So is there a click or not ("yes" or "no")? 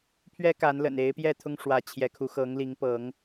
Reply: no